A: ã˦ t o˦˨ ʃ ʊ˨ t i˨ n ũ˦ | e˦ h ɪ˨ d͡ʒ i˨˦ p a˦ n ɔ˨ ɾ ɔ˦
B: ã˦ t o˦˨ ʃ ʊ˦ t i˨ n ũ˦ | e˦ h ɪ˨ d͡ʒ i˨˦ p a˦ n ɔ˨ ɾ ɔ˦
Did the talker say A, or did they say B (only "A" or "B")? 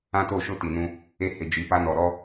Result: B